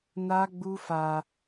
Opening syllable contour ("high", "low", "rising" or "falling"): high